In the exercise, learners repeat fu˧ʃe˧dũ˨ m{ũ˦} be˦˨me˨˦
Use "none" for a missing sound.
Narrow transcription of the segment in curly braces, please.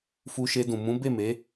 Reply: ũ˨˦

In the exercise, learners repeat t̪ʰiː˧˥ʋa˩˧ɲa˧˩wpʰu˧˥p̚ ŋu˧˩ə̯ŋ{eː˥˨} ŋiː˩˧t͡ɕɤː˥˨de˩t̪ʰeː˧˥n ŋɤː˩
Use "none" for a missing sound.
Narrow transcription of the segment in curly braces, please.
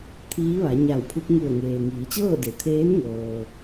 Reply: eː˩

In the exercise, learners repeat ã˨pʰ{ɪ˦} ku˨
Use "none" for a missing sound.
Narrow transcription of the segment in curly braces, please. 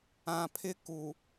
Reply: ɪ˦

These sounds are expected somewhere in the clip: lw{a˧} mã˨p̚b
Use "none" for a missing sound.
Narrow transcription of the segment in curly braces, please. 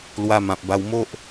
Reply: a˧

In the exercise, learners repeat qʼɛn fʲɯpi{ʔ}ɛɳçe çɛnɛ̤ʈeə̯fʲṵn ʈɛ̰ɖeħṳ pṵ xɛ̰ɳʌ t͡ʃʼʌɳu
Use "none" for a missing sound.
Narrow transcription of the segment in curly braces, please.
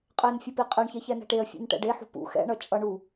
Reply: qʼ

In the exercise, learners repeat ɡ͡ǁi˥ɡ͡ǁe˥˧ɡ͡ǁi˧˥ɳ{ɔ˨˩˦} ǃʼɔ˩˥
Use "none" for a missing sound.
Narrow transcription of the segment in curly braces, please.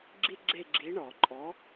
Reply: ɔ˨˩˦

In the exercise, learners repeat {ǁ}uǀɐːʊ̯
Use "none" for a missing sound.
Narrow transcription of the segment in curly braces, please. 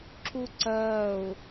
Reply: ǁ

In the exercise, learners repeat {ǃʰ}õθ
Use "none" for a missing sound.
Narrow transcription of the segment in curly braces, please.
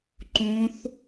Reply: ǃ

